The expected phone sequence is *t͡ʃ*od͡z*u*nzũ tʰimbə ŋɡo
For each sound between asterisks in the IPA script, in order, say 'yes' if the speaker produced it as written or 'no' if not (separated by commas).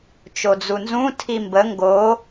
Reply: yes, yes